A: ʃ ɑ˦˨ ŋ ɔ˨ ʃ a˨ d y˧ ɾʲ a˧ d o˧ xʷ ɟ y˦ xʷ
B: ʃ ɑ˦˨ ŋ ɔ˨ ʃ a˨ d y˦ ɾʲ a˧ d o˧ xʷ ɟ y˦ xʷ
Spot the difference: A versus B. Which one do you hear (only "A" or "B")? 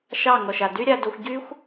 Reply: B